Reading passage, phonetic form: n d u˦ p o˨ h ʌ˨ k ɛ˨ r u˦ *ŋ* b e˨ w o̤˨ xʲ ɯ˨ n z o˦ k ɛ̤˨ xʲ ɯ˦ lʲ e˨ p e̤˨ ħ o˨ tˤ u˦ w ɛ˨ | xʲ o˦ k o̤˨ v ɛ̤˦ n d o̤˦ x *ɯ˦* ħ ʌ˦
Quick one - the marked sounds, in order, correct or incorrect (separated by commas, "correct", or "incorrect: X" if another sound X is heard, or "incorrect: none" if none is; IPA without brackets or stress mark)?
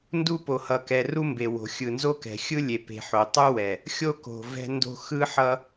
incorrect: m, correct